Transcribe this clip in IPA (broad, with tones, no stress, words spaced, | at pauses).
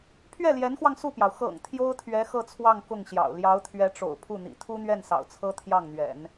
pʰɥɛ˥˩ljɛ˧˥nxwɑ˧ŋ su˥˩pjɑ˩ʊ̯ xɤ̰˨˩ŋ t̪ʰjo˥ʊ̯t̪ʰɥɛ˧˥ xɤ˥˧t͡sʰwɑ˥˧ŋ kʊ˥˩ŋɕjɑ̰˨˩ʊ̯ ljɑ˧˥ʊ̯t̪ʰɥɛ˧˥ʈ͡ʂo̰˨˩ʊ̯ pʰu˥˩n̪ḭ˨˩ t̪ʰu˥n̪ɥɛ˥˩n sɑ̰˨˩ʊ̯t͡sʰɤ˥ t̪ʰjɑ˥˩ŋn̪ɥɛ̰˨˩˦n